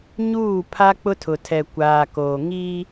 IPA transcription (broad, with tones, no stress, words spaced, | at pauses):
ɲuː˦˨pʰa˦ k͡pʊ˦tʰʊ˨tʰɛ˨ kʷaː˨koː˨ ŋi˦